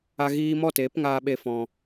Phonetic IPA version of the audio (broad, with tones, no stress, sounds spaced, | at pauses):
a˦ ɣ iː˦ m ɔ˦˨ t eː˨˦ p ŋ aː˧ ɓ e˧ f ɔ̃˨